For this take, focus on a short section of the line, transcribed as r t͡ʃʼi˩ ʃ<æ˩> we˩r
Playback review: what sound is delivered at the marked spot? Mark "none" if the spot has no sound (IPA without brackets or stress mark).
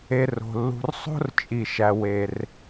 æ˩